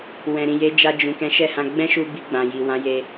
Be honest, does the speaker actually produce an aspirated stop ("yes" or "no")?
no